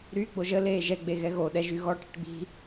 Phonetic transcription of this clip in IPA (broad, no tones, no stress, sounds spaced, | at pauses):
ɾ y ɡ͡b o ʒ ə l eː ʒ ɛ ɡ͡b e ɣ ɛ ɣ o ɗ ɛ ʒ y ɣ ɔ ʈ i̤ ʈ ɡ͡b i̤